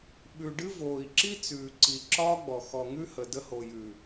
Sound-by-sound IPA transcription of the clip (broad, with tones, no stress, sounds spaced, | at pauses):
ɓ ʉ˨ ɖ ɨ˦ v oː˨ i̯ ǁ i˦ t͡s ʉː˨ ǀ i˨ ǁ ɒː˦ ɡ͡b ɔ˨ x ɔ˨ ŋ ʉ˦ h ə˨ d ə˦ h o˨ j ʉ˨